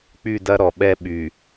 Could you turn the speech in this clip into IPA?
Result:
k͡p y˦˨ d ɐ˦ ɾ ɔ˨ ɓ ɛ˦ ɓ y˨

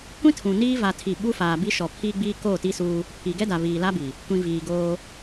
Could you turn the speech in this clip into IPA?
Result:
kʷ ĩ˦ tʰ ũ˨ n iː˦ v a˦ tʰ i˦˨ ɓ u˦ f aː˨ b i˦ ʃ ɔ˨ pʰ iː˦ ɡ͡b iː˦ k oː˦˨ t i˦ s uː˦ | pʰ i˨ ɡ ɛ˦ d a˨ β iː˨ l a˦ b i˨ | kʷ ĩ˨ v iː˨ ɡ oː˦

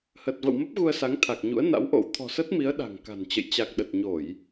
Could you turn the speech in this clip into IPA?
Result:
h ə˨˩ t̚ v ə̰˧˨ w m ə˦˥ p̚ ɣ u˧ ə̯ s a˨˦ ŋ t̪ʰ a˨˩ k̚ ɲ ṵ˧˥ ə̯ n a̰˧˥ w ʔ o̰˧˥ w t̪ʰ ɔ̤˨˩ s ə˦˥ t̚ m i˨˦ ə̯ ɗ a̤˨˩ ŋ k a̤˨˩ n t͡ɕ ə̰˧˨ j t͡ɕ a˨˩ k̚ ɗ ə˨˩ t̚ ɲ o˧˩˨ j

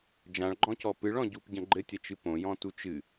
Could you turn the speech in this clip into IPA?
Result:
d͡ʒ ã ɭ ɡ͡ǃ ɔ̃ c ɔ p ɨ ɭ ɔ̃ ɟ u p ɟ ɐ̃ ɡ͡ǃ ɘ tʲ ɐ t͡ʃ ɨ p õ j ɔ̃ t u t͡ʃ ɨ

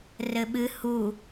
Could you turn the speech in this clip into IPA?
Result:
r ɘ ɓ ɨ h u

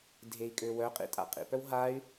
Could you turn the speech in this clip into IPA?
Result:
dʱ e i̯ kʼ ø w œ qʼ ḭ tʼ a̰ qʼ ḭ p œ w ɦ a y̯

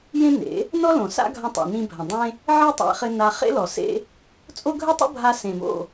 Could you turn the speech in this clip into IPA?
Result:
j ẽ˦ n ḛ˨˦ | n ɔ˦ l õ˨ s a̰˦ ɡʱ ɐ̃˧ tˤ ḭ˨ n ĩ˧ bʱ ɐ̃˨ dˤ ẽ˦ | ʕ e˦ tˤ a̰˧ χ ɘ˧ n a˧ χ ḛ˦ l ɔ˨ s ḛ˦ | t͡sʼ o˦ ɡʱ ɘ˦ tˤ o̰˦ bʱ a˧ s ẽ˨ m o̰˦˨

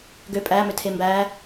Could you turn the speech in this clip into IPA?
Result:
ɡ ø pʼ æ m ʏ tʰ e m b æ

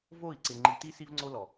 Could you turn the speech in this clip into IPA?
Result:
v o˦˨ i̯ ǀ ɪ˨ ŋ͡ǃ i˨ t i˦ s i˦ v ŋ͡ǀ o˦ l ɔ˨

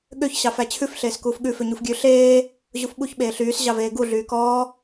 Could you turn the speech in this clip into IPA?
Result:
ɠ ø ç ɕ ɑ f æ t͡ɕʰ ʉ f ɬ eː s k uː f ɠ ʉ f ø ɲ u f ɡʲ ʉ ɬ eː | ʑ u f ɓ u ç ɓ eː ɬ yː s ʑ ɑ v eː ɡ u ɮ yː k ɔː

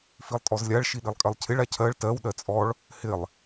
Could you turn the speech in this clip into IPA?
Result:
f i lˠ tʼ ɔ z lʲ a ɭ ʃ i ɗ i lˠ kʼ ɜ lˠ cʰ ɪ ɭ a cʰ ɜ ɭ t ɜ w ɗ ɜ t͡sʼ ɔ ɭ | h ɪ lˠ

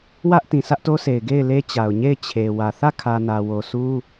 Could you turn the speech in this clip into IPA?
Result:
w ä˦ ʔ t ĩ˨ sʰ ä˦ ʔ t o˦ s e˨ ɪ̯ ɡ e˦˨ ɪ̯ l e˦ t͡ɕ a˨ ʊ̯ ɲ e˦˨ ɪ̯ t͡ɕʰ e˨ w ä˨ θ ä˦˨ kʰ ä˨ n ä˨ w o˨ sʰ u˦

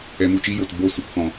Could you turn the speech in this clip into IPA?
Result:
ɛ˧ m u˦˨ t͡ʃ iː˦ j o˨ t b o˦˨ s ɨ˨ k f ɔ̃˨

